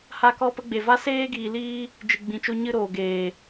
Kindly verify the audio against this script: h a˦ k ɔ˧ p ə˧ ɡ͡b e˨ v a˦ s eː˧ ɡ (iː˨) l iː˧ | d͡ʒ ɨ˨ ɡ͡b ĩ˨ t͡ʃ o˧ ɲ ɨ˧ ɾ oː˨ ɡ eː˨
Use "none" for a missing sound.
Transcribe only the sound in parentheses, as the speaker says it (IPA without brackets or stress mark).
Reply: iː˨